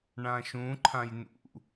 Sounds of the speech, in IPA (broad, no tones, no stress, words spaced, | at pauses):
ɳãʃũ ǃʰãjnṵ